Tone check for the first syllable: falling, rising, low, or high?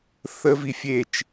high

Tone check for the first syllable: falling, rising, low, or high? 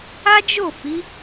high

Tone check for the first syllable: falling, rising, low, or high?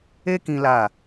high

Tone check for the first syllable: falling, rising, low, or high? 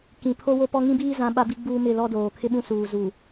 low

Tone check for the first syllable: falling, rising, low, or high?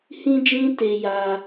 high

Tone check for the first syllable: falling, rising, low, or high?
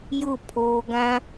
falling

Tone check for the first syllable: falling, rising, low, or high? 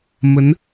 rising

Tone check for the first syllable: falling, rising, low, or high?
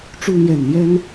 high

